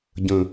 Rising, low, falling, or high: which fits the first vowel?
low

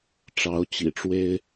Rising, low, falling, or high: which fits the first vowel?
rising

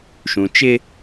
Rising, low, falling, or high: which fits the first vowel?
low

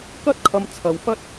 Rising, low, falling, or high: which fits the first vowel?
high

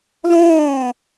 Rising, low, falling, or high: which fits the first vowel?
falling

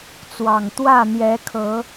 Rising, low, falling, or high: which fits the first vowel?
low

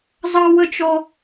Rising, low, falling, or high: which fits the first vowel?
high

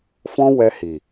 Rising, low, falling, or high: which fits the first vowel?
high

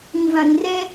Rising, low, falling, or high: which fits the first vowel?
low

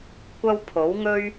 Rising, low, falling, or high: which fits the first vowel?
high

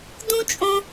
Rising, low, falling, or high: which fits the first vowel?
high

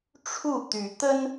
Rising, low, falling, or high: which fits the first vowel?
falling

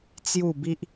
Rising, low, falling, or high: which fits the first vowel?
falling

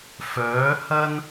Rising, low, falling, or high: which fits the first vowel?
rising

